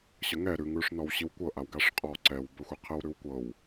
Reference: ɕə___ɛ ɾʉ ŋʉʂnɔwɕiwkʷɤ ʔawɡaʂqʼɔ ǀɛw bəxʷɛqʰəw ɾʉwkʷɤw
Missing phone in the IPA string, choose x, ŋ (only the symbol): ŋ